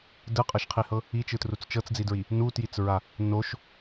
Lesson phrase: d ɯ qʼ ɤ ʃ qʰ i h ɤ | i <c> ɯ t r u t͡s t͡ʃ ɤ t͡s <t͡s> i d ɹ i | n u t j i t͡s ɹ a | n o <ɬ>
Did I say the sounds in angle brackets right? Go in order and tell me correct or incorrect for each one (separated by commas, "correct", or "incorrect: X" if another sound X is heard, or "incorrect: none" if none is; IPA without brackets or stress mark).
incorrect: t͡ʃ, incorrect: d͡z, incorrect: ʃ